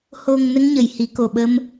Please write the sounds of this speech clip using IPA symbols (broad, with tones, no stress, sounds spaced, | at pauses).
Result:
h o˨˩ ŋ n ə˧ ŋ ɲ ə˨˩˨ j h i˨˩˦ k o˨˩ ɓ ə˧ m